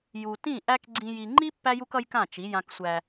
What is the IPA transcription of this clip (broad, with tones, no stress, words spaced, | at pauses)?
ju˨ tĩ˦˨ʔæ˦k ɡ͡ǀĩ˦ji˦ ŋ͡ǃi˦ pːæ˦ju˦kʌ˦jkã˦˨ t͡ʃi˨˦ jã˦ksʷæ˦